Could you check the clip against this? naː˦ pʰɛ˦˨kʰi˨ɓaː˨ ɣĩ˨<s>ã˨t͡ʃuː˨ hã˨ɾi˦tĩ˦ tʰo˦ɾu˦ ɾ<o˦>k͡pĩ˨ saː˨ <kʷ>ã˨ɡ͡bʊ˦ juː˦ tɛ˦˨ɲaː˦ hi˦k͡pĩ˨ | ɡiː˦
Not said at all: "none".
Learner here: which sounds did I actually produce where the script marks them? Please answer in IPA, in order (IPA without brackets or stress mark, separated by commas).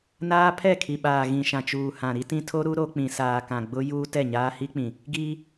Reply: ʃ, o˦, k